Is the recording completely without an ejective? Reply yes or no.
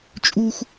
no